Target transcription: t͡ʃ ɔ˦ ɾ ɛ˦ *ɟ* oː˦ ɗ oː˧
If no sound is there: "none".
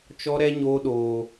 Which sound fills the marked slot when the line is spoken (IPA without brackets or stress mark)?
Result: ɲ